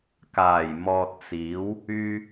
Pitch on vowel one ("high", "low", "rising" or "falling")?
low